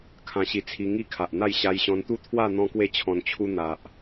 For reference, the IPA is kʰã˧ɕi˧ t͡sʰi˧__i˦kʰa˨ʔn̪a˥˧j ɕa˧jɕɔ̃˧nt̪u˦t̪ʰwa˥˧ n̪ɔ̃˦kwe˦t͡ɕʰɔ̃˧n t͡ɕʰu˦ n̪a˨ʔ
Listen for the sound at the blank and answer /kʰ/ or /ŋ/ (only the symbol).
ŋ